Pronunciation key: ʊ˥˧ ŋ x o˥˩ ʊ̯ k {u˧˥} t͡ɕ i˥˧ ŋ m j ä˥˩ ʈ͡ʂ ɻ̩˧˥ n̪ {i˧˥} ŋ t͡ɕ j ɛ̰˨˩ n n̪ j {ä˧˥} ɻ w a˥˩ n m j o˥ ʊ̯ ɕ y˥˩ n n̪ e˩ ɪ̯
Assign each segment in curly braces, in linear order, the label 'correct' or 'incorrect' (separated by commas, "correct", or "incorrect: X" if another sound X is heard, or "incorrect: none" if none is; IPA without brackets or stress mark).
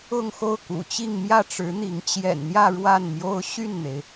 incorrect: ṵ˨˩, correct, incorrect: ä˥˧